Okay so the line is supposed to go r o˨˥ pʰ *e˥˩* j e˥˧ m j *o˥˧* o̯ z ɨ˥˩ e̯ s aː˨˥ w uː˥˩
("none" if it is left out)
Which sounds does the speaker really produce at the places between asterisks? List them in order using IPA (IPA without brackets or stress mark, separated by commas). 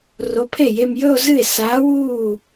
e˥˩, ɵ˥˧